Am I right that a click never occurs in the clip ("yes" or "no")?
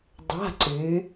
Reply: no